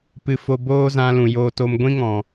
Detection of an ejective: absent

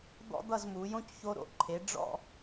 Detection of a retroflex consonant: present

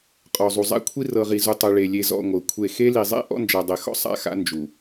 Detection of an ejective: present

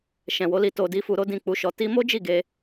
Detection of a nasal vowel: present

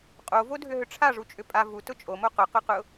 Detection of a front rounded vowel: present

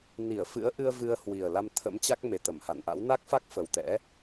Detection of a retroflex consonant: absent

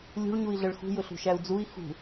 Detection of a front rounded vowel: absent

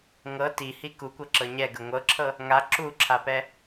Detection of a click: present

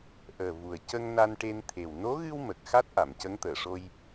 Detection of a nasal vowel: absent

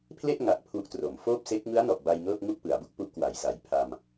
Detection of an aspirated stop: present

